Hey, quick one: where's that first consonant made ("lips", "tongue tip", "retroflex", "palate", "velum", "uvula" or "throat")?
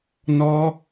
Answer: tongue tip